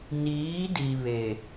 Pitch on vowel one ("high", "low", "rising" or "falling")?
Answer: rising